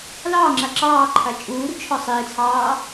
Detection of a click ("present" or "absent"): present